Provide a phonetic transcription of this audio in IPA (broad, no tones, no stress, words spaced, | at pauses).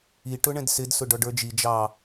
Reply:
i ʈʊɳɛ̃dsɪd sʊɖɔɖə˞d͡ʒi d͡ʒɑ